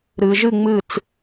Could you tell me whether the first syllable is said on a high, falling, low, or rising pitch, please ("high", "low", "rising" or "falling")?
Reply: low